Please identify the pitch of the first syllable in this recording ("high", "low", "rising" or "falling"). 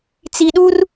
low